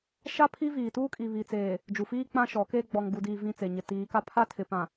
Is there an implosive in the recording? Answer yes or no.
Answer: no